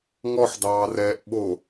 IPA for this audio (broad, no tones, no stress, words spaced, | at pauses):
ŋɔħdɑːrɛːʔ ɓo